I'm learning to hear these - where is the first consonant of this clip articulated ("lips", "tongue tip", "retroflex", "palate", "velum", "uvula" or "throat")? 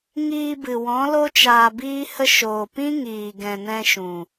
velum